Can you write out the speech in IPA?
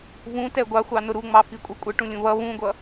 v ũ t ɛ ɡʷ ɑ xʷ ɑ n ʊ ɾ u ŋ͡m ɑ f i kʷʼ ʌ kʷʼ ə ʈ ũ lʲ ũ β ʌ β ũ ɡʷ ʌ

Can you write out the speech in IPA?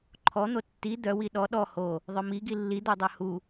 ǃʰ ɔ n̪ o tː i d̪ œ w i ɗ ɔ ɗ ɔ h o | ðˤ œ m i ɡ i lː i d̪ o dˤ œ h u

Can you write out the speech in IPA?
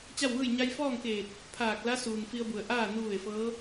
t͡ɕ a˥˨ w ʋ ɯː˥˨ j ɲ a˧ j f ɔː˥˨ ŋ k eː˧˩ t̚ | pʰ aː˧˩ k̚ l a˧˥ s uː˩ n f i˧ ə̯ b u˩ ə̯ ʔ aː˥˨ n u˧ ʋ e˩ f ɤː˧˥

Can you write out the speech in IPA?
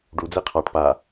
ɖ u d͡z e qʰ ɑ ʈ p a

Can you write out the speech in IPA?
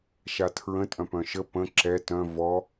ʃ a tʰ ɹ ə̃ tʼ œ̃ p œ̃ ʃ ə p ə̃ ǁ ɛ t œ̃ v ɔ

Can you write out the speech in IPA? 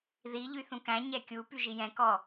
ð i ʎ y θ ũ k æ̃ ɲ ɛ kʲ u p y ʒ i j ɛ̃ k ɔ

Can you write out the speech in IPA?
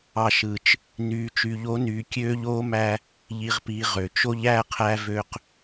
ɑ˨ ʃ ɯ˨ t͡ʃ | n yː˨ t͡ʃ y˨ ʎ o˨˦ n yː˨ kʲ øː˦ ʎ oː˦ m æ˦ | ʎ i˨ ʁ p i˨ ʁ ø˨ t͡ʃ o˦ ʎ æ˦˨ qʰ æ˦ v ø˦ q

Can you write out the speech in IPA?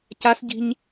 c a s ɟ i̤ ɲ

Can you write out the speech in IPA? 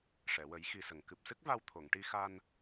ʂ ɛ˨˩˨ w ə˨˩˦ j x i˧ s ə˨˩˦ ŋ k ɨ˨˩ p̚ s ɨ˦˥ k̚ v a˧ w t̪ʰ o˨˩˨ ŋ ʈ i˧ x a˧ n

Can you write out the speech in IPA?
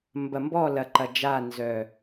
m b ɐ˨ m b ɔ˦˨ l ɐ˨ ǃ ɐ˨ d͡ʒ a˦˨ n z œ˨

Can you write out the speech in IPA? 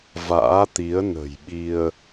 v a̰ː˧˥ t̪ i˨˦ ə̯ n ə̤˨˩ j ɓ i˧ ə̯

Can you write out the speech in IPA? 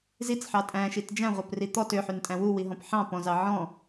z i t͡s ħ ɑ tʼ æ̃ ʃ i t d͡ʒ æ̃ ʁʷ œ p r i t̪ ɔ t ø ħ y n tʼ æ̃ w u w i ɦ ɔ̃ p ħ ɑ̃ p ɔ̃ z ɑ ʕ ɔ̃

